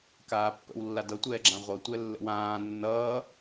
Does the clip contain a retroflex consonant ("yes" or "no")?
no